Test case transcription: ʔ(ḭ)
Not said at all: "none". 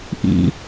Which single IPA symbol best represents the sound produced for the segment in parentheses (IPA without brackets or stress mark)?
ḭ